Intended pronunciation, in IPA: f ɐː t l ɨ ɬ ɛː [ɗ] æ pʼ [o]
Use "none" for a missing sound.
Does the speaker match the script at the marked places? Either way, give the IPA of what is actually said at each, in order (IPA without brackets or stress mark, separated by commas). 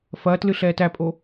t, o